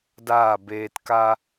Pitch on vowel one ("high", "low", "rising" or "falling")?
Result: falling